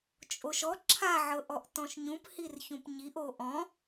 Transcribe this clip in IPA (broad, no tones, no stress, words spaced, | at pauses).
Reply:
t͡ʃʼoʃɔ ǁʰaʕɤʔɔʔ tɔ̃ʃɲũp hirçũpɲiʔ oʔɔ̃